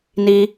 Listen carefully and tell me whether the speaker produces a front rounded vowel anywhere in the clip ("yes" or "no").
no